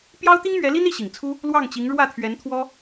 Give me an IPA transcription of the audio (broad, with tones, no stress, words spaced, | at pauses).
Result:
pjɑ˥ʊ̯t̪i˥ŋmɥɛ˧˥li˥n i˥˩ɕi˨˩ŋt͡sʰu˥ | lwɑ˥˩ŋt͡ɕi˧˥ŋ ɻwä˥˩t̪ʰɥɛ˧˥n t̪ʰwɔ˥